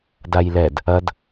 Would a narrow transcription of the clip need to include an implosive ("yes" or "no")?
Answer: no